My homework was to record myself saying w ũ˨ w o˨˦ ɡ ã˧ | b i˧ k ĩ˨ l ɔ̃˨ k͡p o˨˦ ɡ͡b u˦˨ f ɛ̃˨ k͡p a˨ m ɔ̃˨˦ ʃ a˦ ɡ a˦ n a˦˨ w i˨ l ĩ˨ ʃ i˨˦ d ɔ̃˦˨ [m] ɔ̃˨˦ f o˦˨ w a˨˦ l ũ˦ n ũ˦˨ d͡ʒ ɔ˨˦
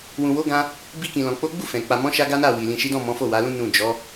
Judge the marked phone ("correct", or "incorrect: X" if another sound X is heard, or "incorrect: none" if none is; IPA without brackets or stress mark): correct